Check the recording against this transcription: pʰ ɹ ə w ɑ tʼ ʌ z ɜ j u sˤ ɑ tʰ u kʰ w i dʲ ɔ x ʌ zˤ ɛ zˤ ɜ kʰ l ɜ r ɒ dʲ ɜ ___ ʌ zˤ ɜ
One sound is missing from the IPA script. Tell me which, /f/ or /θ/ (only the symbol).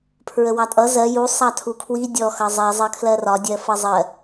f